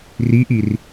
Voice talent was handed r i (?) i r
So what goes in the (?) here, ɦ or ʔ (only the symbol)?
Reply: ʔ